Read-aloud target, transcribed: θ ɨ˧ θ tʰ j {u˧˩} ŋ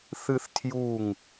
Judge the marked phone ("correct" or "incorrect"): correct